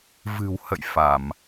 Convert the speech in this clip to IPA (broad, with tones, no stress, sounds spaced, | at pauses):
v ɨ̤˨˩ w h ə̰˧˨ j f a˧˩˨ m